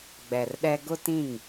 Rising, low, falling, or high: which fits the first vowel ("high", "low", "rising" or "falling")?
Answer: low